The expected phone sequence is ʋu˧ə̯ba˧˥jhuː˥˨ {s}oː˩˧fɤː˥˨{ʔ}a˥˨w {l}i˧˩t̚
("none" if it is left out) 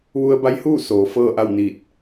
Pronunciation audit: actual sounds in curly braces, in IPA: s, ʔ, n

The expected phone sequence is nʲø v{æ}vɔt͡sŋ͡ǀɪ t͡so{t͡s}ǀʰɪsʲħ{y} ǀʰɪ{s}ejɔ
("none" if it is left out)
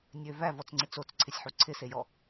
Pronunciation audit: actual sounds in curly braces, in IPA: æ, t͡s, u, s

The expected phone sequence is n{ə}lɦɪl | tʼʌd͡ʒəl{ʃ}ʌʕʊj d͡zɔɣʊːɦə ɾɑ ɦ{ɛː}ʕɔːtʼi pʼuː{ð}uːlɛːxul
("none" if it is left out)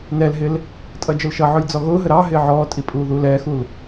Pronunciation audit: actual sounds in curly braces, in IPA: ɛ, ʃ, ɪː, ð

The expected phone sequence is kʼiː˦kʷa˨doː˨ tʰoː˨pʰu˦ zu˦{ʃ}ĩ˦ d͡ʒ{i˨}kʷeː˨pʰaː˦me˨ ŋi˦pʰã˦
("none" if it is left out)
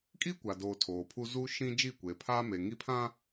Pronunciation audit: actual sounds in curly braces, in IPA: ʃ, i˦˨

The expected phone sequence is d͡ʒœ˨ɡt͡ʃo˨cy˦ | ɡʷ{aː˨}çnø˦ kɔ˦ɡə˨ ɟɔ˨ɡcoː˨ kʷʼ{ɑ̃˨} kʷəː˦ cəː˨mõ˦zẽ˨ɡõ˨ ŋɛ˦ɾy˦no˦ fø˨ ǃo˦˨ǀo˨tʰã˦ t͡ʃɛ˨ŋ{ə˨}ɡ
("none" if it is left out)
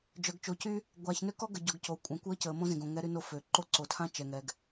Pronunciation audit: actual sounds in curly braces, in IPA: aː˨, ã˨, ɛ˨

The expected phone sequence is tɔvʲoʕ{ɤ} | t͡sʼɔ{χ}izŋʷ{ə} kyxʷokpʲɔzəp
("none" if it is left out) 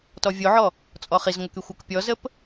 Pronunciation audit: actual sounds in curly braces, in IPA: ɔ, χ, ə

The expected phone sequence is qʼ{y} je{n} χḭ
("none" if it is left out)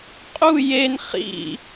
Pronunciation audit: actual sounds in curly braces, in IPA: u, n

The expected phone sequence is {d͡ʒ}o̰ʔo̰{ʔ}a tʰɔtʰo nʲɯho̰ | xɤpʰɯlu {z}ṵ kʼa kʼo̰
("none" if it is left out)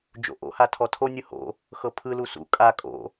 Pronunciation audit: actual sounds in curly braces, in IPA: d͡ʒ, h, s

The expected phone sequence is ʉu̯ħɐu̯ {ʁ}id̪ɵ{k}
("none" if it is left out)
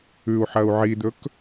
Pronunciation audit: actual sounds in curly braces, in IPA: ʕ, k

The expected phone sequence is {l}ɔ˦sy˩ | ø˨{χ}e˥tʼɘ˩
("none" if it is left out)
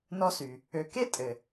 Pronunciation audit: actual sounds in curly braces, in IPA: n, k

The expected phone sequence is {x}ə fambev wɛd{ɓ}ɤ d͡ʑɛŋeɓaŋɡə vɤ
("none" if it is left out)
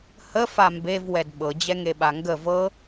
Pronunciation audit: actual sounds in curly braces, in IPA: h, ɓ

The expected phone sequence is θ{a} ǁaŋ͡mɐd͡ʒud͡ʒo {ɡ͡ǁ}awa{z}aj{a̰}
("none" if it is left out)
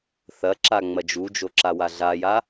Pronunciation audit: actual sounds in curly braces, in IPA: ɐ, ǁ, ɮ, a

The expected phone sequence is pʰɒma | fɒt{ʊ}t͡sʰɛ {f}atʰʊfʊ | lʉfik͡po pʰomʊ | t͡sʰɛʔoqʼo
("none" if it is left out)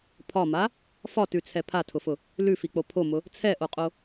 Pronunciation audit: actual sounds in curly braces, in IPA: ʉ, pʰ

